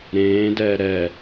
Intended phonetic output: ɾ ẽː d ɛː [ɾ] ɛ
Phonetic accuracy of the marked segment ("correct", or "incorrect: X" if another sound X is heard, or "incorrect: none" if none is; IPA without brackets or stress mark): correct